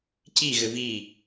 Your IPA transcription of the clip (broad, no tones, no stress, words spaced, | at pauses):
ciɣɘ vi